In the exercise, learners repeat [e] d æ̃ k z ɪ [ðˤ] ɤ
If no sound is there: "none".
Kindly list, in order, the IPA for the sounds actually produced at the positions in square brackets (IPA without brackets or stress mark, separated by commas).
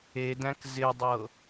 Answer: e, dˤ